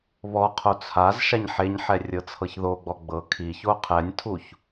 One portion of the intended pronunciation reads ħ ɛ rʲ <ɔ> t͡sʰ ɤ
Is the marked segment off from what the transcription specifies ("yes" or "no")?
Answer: yes